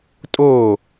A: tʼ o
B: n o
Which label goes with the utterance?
A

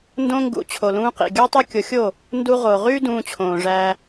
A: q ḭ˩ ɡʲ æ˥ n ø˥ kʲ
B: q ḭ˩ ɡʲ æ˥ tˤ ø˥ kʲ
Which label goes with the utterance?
B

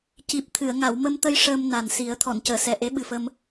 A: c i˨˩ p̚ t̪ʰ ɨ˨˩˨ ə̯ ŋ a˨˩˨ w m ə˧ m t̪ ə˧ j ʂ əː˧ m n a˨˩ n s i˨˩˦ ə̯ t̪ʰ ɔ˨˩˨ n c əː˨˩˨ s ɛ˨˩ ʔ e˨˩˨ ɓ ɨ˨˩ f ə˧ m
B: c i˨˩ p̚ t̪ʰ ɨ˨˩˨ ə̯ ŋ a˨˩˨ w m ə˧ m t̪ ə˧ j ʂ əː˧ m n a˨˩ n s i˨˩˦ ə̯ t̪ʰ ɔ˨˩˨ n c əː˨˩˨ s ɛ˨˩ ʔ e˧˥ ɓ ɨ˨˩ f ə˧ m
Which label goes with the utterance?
B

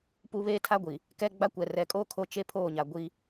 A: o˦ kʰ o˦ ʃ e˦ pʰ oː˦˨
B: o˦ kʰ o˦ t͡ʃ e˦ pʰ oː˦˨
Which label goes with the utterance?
B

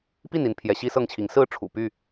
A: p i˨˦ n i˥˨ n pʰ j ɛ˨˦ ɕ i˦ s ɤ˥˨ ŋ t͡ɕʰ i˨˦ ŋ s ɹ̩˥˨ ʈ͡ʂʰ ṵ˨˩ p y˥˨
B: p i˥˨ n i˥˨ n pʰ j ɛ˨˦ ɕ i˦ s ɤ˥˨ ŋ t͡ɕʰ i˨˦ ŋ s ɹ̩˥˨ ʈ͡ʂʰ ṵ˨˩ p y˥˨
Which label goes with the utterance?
B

